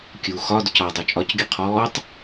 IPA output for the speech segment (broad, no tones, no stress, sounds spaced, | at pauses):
kʲ u x ɒ d ʊ c ɒ dˤ ɵ t͡ʃʼ ɒ c ɡʲ ʊ qʰ ɔː tˤ